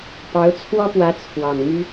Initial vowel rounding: unrounded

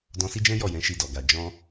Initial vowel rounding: rounded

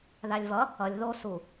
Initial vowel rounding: unrounded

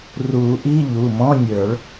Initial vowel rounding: rounded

